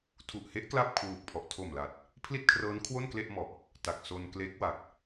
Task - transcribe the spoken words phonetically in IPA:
tʰu˨˩ʔhe˦˥ʔ kla˥˩p̚kʰwuː˨˩k̚pʰɔ˨˩ʔ tʰo˨˩mla˨˩t̚ | pʰli˥˩t̚kʰrɤː˦˥n kʰwo˥˩nkle˥˩ʔmɔ˨˩ʔ | ta˨˩k̚ so˧nkle˦˥k̚wa˨˩k̚

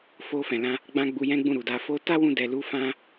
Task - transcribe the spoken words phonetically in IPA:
fo˧ fɛ̃˨lã˧ | ɡ͡bã˦ɡ͡bu˧jɛ̃˦ ɡ͡bũ˦˨ɾu˨da˧ fo˦ ta˦wũ˧dɛ˨lu˧ fã˦

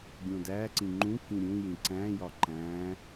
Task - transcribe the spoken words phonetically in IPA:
ɡʲõdæǀĩ ŋ͡ǃũkĩ ɾʲũjĩ ǀæ̃jɒ ǃæ̃

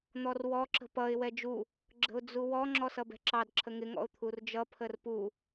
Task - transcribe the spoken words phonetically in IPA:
n̪ɔrwɔ ǁə̤pʌɪ̯ wɛd͡ʒu | ɡ͡ǁə̤ʊ̯d͡zuwɔ ŋ͡ǁɔsʌbɛ̤ǁɑd ǁʰəŋɪ ŋɔ̰ʊ̯t̪ʰurd͡ʒʌ pʰərpu

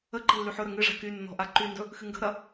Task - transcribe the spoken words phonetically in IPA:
əǃə̤ lːyħɵɾə ŋɨʐa̤ kynːɔ̤ ʔaǃyndɵ | xɨŋɡə̤ɾɐ

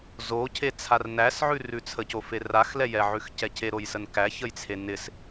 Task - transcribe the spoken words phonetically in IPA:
zocʰe t͡sʰarnæsʕʉ rʉt͡sʰəcofe raxlɛjɛʕʉx cɛcʰeɾojsən kæçəjt͡sʰe nɪs

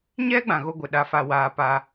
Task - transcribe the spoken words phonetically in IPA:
ɲɛ˦ɡ͡bã˨ ɣo˦ɡʷɪ˨ ɗa˦fa˦waː˦ pa˦

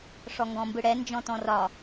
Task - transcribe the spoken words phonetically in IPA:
ʂɔŋɡɔ̃mbɯɽɛ nd͡ʒɔ̃tɔ̃rɒ

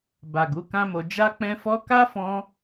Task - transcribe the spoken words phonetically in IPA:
ba˨ɡu˨˦ kã˦mo˧ d͡ʒa˦k͡pɛ̃˦fɔ˦ ka˦ fɔ̃˦

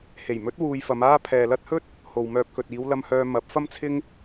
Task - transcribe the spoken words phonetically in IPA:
he˨˩j mɵ˨˥t̚ wuː˧jfɐ˨˧maː˥ pʰɛː˨lɐ˥t̚hɵ˥t̚ | ho˨wmœː˧p̚ kɵ˨t̚ iː˨˧w lɐ˧mhœː˧ mɐ˨˥p̚fɐ˥mt͡sʰɪ˥ŋ

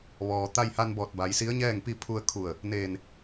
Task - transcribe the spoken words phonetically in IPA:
ʋɔː˩ t̪a˧jha˧nbɔː˧˩t̚ ba˩˧jsi˧˥ə̯ɲɛː˥˨ŋpi˥˨ pʰu˧ə̯kʰu˧˩ə̯ | neː˧˩n

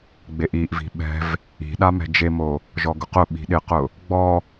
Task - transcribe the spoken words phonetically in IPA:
ɡ͡beʔiʔvi̤ ɓɛ̤v | i̤ɗa mɛ̤d͡ʒemo | ʒɔɡʊqʊɓi̤ ɗɪqʊ | ɡ͡bɔ

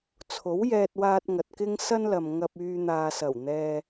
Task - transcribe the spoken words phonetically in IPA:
t͡sʰo˨˥wjɛː˧t̚waː˧t̚ ŋɐ˨t̚kɪ˥ŋ sɐ˥nlɐ˨m ŋɐ˧p̚ yː˧n̪aː˨sɐ˨˩w n̪ɛː˧

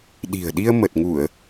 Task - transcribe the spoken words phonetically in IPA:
ɗi̤˨˩ə̯ɗi˧ə̯ mə˨˩t̚ŋu˧˩˨ə̯

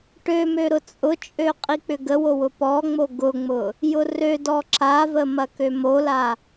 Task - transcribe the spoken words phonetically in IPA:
ʈømø ɾʊt͡sʼʊt͡ʃʼø qʼik͡pʏɡəwo wʊpɔŋ͡mo ɡʊŋ͡mʊ | jʊrødɔ ǁavə mɐkømola

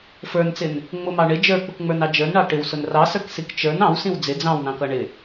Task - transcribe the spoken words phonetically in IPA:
fə˞nt͡sɪn | ŋ͡mʊmɑ ɳɪ d͡ʒə˞k͡pʊkŋ͡mə˞nɑ d͡ʒə˞nɳɑ ʈɪwsʊn rɑsə˞ksik t͡ʃə˞n ɑ̃wsĩw d͡zɪ d͡zɑ̃wnɑ̃kʌ ɳɪ

